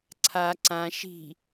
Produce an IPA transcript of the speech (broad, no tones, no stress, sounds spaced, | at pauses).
ǀʰ a ǀ ã ʃ i̤